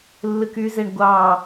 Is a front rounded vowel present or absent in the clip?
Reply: present